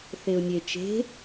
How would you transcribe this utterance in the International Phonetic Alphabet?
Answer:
θ e ʊ̯ nʲ e t͡ʃ e̤

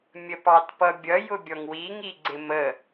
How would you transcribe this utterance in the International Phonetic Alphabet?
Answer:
mʲ ə p ɑ t p ʌ bʲ ʌ j ʊ bʲ ɔ ŋ w i ŋ i ɡ͡ǀ ɪ m ə

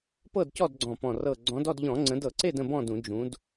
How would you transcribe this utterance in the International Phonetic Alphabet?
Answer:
p ɤ˥˨ d c ɔ˥˨ d ɡ͡ǀ ɔ̃˧˩ p ɔ̃˧˩ r ɤ˧˩ ɡ͡ǀ ɔ̃˨˦ d ɔ˥˨ d ʎ ɔ̃˧˩˧ ŋ͡ǀ ə̃˨˦ d ɤ˧˩˧ ǀ e˥˨ d ə̃˥˨ b ɔ̃˥˨ d ũ˧˩˧ d͡ʒ ũ˨˦ d

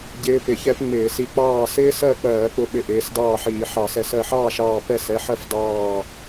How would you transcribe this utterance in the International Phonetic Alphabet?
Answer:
ɟ ɪː˦˥ p ɪ˧˩˧ ç ɛ˦˥ p ŋ͡m ɪː˧˩˧ s i˧ k͡p ɑː˥˩ s ɪː˦˥ s ɜ˥˩ k͡p ɜː˧˩˧ k͡p ʊ˧˩ ɓ ɪ˧ ʔ ɪː˩˧˩ s d ɑː˥˩ ħ iː˧˩˧ ħ ɑ˧˩˧ s ɛ˧˩ s ɜ˧˩ ħ ɑː˥˩ ʃ ɑː˧˩ p ɛ˥˩ s ɛ˩˧˩ ħ ɜ˥˩ f d ɑː˥˩

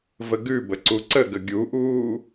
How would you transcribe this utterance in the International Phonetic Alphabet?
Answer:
v ə ɡ ʉ b ə ǀ u ǀ ə ɡ ə ɡʲ u ʔ uː

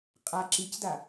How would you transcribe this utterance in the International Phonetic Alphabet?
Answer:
qʼ a ǁ i c d a

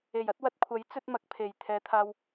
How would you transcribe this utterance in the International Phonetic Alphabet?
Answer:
e˨˩ j ɐ˨˥ t̚ w ɐ˨˥ t̚ kʷʰ ɐ˨˥ j t͡s ɵ˥ t̚ m ɐ˨˥ k̚ pʰ e˨˩ j t̪ʰ ɛː˨˧ t̪ʰ aː˧ w

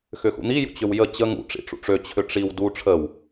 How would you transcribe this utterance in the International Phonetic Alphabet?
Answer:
x ʏ x ṵ n̪ i j ṵ t͡ɕ ʏ w j ə t͡ɕ ə ŋ ṵ ʈ͡ʂ ḭ ʈ͡ʂ ṵ ʈ͡ʂ ø t͡ɕʰ ʏ ʈ͡ʂ i w d u ʈ͡ʂʰ ə w

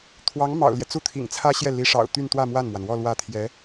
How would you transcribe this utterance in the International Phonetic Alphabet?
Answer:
t̪ʰ w ɑ˧˥ ŋ m ɑ̰˨˩ ʊ̯ l j ɛ˦ t͡s u˥ t̪ʰ ḭ˨˩ ŋ t͡sʰ ä˥ ɕ j ɛ˥˩ l i˧˥ ʂ ɑ̰˨˩ ʊ̯ t̪ y˥˧ n t̪ w ä˥˧ m w a˥˩ n m w a˩ n w ɔ˥˧ l w ä˥˩ t̪ʰ j ɛ˧˥

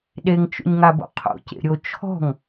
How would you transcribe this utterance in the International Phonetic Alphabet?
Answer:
ɗ e ŋ t͡ʃ o̰ ɲ ŋ a b o̰ qʰ o̰ c ḛ ɾʲ o t͡ʃʰ ɔ̤ ŋ

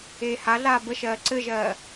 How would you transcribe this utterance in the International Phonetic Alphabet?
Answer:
eː h a ɮ aː b ə ʃ ɜː ǀ ɘ ʒ ɜː

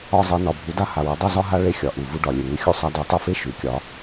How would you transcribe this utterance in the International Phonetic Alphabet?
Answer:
ɒ˥˩ zˤ e˧ n ɒ˩ bʱ u˩˥ d a˥ h a˩ w e˩˥ dˤ u˥˩ z ɒ˥ ɦ a˥ ɭ e˧ xʲ ɒ˩ ʔ u˩ v u˧ ɖ ɒ˩ lʲ e˩ ŋ ʉ˧ xʲ u˥ sˤ a˧ d ʉ˩˥ tˤ u˧ f e˥ ʃ ʉ˩ kʲ ɒ˩˥

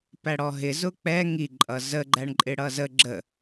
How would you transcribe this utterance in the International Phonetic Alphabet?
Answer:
p æ ɽ ɔ ɦ ɪ z ʊ k͡p ɛ ŋ i ǃʼ ʌ z ə ɡ͡ǃ æ ɳ ǃʼ ɪ ɽ ʌ z ə ɡ͡ǁ ə

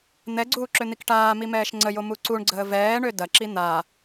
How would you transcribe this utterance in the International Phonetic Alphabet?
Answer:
n̪ ɛ ɡ͡ǀ uː ǁ ø n̪ i k ʈ aː m i m ɛː ʃ ŋ͡ǀ ə j o m u ǀ u ɳ ɡ͡ǀ əː v ɛː ɳ ø d ɐ ǁ i n̪ a

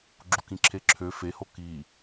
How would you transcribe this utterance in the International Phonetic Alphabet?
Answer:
ɡ͡ǁ u k ĩ ǁʰ e ǁʰ ø f e h o k i

